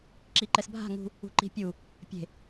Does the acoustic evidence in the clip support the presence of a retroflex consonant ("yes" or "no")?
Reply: no